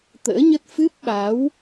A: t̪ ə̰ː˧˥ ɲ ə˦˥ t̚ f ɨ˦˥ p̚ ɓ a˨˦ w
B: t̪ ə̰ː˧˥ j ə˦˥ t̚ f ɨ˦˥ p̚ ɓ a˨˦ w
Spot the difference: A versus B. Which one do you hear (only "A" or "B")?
A